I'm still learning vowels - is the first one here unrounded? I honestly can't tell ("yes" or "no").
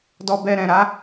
no